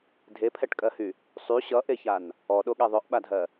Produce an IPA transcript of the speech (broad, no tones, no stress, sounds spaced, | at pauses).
dʱ e pʰ ɛ ʈ kʼ ɜ h y | sˤ y ɕ ʌ ʔ e ç a n | ɔ ɗ o ɠ ɛ ðˤ œ ʔ ɓ a dʱ ɜ